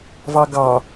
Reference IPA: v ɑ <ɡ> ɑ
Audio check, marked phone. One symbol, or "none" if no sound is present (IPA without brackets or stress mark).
ɡ